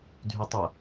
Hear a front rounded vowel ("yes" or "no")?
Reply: yes